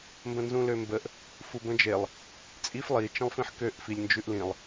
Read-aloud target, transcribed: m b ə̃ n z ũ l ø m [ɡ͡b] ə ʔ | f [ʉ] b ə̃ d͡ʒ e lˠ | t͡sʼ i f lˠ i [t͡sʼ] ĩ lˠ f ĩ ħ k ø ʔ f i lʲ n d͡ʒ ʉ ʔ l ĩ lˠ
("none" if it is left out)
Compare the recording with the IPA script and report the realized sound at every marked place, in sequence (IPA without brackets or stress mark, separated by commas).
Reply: b, u, t͡ʃ